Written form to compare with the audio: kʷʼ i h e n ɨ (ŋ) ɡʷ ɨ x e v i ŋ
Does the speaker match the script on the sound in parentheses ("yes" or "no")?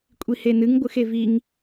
yes